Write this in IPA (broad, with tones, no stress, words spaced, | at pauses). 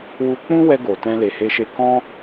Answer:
wu˧k͡pũ˦wɛ˧ ɡo˨ tɛ̃˧le˨he˧ʃe˧ kɔ̃˦